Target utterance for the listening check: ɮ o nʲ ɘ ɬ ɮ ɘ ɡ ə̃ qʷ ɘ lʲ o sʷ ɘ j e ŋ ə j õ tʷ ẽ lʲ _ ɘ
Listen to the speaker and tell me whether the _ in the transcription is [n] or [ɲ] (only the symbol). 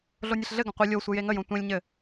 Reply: ɲ